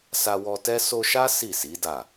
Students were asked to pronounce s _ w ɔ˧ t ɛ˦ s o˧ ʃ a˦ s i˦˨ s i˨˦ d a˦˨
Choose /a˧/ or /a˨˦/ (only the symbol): a˧